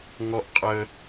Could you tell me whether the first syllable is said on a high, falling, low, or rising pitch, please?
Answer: high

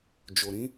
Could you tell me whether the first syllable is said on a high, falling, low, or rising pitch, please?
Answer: low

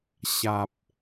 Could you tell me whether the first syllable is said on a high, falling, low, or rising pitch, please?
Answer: low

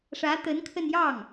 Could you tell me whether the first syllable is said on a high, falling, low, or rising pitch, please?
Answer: rising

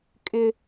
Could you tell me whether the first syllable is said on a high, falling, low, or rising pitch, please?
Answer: high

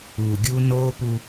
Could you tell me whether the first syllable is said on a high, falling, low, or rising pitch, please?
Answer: low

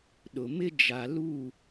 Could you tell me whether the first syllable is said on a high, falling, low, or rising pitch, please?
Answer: low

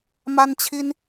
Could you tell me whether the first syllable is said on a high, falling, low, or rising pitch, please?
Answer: high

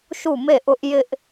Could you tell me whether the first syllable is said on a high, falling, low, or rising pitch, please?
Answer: falling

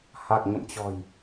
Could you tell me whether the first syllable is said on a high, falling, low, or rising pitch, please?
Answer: low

